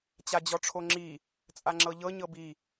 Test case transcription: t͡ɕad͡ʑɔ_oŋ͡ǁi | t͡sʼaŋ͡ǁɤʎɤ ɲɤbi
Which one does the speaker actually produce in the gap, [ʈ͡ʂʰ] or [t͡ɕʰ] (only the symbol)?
ʈ͡ʂʰ